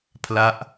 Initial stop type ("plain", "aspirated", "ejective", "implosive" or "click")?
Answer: aspirated